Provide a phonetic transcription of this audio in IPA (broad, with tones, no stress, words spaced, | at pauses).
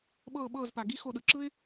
ɓɤː˧˩ɓɤː˧˩zpa˩ ɡi˦xo˧˩ɗɯ˩ ǁɯ˦ɪ̯